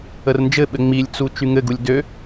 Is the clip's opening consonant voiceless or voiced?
voiced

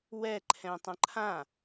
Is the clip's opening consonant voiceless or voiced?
voiced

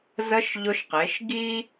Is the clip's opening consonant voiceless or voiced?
voiced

